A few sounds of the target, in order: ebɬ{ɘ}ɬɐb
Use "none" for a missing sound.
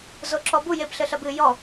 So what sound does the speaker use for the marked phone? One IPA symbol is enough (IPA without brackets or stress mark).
ɘ